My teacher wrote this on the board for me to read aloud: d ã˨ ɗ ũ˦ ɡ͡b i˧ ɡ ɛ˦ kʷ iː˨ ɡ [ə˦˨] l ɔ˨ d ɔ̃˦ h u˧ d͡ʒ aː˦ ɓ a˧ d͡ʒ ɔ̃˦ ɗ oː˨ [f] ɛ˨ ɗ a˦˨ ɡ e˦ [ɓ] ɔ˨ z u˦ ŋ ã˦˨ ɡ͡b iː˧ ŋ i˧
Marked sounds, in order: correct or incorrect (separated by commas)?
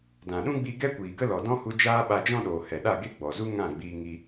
incorrect, incorrect, incorrect